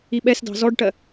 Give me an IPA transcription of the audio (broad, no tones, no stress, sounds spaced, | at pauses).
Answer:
i ɓ ɛ s d ɑ̤ z ɔ ɖ ʈ ɜ